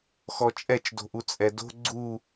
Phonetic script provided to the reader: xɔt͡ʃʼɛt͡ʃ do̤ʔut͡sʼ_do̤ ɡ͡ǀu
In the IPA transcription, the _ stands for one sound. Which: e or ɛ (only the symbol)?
ɛ